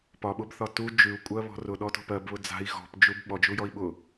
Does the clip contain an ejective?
yes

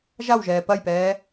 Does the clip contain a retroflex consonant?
no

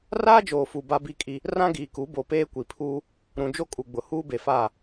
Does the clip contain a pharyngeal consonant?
no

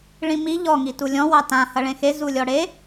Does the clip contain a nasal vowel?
yes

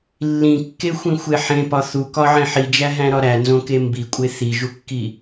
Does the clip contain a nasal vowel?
yes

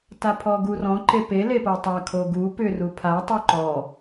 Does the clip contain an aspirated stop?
yes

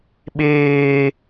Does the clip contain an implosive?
yes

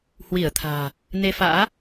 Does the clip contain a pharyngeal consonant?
no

